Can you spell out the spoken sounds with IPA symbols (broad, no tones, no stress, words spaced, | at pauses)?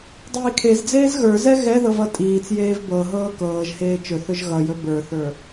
dˤiːkʰezd͡zeːz ɣə˞zɛ ɣɛðɤv ʌtʼiːt͡sjeːv bɤɦɤː kɤːʒheː t͡ʃɵθɵʒ ɣʌjɵ bə˞θə˞